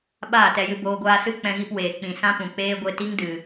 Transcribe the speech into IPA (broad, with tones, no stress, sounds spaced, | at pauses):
ɓ aː˦˨ t ɛ˧ j ɨ˧ b oː˧ ɡʷ aː˧ s ɨ˦ k͡p ɛ̃˧ ɣ i˧ p w eː˨ k͡p ĩ˨ s ã˦ p ũ˨ k͡p eː˦ ɡʷ e˧ t i˦ ŋ d ɨ˨